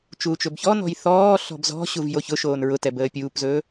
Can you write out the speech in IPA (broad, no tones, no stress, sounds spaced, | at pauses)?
t͡ʃ uː t͡ʃ ɵ b ç ɔ n ɔ̤ j θ ɔː ɬ ɔ̤ b z ɔ̤ ɕ u v j o ç ʊ ʃ oː n ɹ ʊ t ɛ b əː pʲ uː p z ɵː